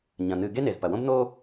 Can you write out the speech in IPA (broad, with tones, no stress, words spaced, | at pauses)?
ɲɐ̃˩n̪ɨ˨ ɡe˥ne˩z pɐ˩wõ˥b n̪o˥